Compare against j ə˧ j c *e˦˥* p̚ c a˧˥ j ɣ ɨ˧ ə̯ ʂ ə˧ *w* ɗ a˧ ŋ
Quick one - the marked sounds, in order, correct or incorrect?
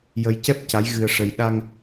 incorrect: ɛ˦˥, incorrect: j

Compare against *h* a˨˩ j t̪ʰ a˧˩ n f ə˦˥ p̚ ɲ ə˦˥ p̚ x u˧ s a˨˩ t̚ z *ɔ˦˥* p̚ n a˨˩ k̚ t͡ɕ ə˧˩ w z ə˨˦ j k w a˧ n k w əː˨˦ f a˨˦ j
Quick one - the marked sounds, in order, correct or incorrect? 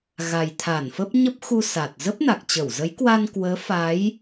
incorrect: ɣ, incorrect: ə˦˥

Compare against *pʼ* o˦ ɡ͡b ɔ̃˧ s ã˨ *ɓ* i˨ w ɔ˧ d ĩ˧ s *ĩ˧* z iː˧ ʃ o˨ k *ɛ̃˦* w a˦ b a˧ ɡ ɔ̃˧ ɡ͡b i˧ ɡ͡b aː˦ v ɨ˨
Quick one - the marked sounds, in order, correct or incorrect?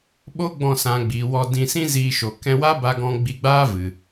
incorrect: ɓ, incorrect: ɡ͡b, incorrect: ĩ˦, incorrect: ɛ̃˧

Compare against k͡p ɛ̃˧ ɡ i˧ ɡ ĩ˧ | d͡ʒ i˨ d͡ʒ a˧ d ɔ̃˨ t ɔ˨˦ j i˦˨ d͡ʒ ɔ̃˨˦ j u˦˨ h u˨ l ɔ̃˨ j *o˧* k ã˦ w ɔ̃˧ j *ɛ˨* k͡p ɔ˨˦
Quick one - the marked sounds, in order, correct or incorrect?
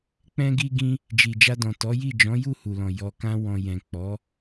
incorrect: ɔ˧, incorrect: ɛ̃˨

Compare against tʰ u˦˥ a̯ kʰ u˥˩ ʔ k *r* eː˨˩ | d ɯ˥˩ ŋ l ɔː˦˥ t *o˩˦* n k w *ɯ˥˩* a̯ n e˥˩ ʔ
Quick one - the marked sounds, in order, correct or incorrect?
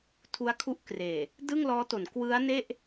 correct, correct, incorrect: ɯ˦˥

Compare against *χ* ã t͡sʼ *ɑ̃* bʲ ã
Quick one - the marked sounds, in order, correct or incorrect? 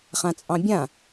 correct, correct

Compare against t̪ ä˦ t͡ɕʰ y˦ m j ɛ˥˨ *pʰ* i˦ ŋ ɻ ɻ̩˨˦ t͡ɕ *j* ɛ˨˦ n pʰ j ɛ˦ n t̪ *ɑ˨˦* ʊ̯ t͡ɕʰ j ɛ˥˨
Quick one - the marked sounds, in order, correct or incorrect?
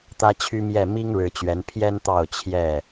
incorrect: m, incorrect: ɥ, incorrect: ɑ˥˨

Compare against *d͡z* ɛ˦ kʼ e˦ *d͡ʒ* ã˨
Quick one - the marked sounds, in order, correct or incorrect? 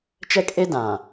incorrect: t͡ʃ, incorrect: d

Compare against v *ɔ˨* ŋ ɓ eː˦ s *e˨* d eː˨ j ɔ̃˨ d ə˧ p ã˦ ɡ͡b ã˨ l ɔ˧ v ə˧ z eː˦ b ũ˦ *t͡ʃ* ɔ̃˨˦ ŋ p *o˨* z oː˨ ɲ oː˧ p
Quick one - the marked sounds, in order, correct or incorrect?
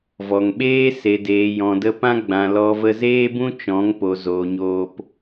correct, correct, correct, correct

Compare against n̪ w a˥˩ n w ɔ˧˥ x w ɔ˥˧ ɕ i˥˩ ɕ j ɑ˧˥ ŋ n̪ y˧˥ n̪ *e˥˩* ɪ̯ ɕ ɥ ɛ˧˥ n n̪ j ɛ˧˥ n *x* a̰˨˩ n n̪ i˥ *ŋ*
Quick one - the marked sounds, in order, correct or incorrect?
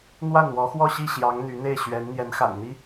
correct, correct, incorrect: none

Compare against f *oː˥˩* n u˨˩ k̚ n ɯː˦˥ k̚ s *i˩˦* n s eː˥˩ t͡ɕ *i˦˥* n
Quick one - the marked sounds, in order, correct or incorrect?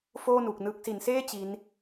correct, correct, correct

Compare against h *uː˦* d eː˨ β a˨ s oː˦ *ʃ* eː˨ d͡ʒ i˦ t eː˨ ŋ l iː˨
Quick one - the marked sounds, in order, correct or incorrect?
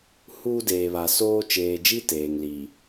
correct, incorrect: t͡ʃ

